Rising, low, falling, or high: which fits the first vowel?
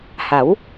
rising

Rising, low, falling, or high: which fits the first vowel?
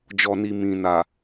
low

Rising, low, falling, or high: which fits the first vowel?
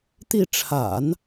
falling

